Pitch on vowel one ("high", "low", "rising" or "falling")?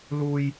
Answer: high